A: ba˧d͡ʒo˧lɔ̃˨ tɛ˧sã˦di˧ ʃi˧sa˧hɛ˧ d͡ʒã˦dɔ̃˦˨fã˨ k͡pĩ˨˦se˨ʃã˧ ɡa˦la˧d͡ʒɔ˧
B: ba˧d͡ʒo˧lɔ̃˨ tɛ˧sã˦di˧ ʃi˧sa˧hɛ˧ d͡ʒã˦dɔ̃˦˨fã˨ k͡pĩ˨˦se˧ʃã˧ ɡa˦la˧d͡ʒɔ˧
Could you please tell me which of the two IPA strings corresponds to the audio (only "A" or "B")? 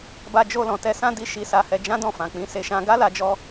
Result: B